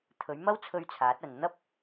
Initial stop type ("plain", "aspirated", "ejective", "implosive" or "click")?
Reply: aspirated